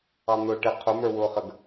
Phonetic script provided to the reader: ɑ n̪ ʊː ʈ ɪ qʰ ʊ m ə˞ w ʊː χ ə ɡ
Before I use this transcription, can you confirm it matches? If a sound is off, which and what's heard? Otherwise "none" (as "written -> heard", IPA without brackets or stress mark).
none